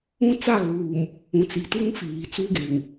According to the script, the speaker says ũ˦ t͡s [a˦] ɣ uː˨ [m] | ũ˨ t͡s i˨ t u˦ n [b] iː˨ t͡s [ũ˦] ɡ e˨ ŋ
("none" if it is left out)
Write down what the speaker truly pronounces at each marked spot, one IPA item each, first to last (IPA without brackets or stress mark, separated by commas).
a˦˨, m, f, u˦